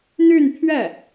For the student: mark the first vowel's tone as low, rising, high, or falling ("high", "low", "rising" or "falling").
falling